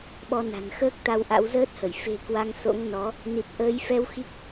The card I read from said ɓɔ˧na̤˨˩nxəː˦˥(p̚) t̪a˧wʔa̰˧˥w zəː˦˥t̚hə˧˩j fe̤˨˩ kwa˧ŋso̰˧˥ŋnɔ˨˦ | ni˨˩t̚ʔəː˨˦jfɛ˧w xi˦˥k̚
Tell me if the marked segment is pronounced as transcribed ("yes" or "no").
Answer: no